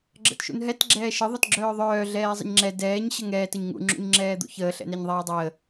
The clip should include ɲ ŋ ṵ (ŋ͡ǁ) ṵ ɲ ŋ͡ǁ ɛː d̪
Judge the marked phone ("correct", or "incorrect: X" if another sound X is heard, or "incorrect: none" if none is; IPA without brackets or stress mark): correct